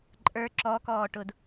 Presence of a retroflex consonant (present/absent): present